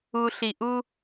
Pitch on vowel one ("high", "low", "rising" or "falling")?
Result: low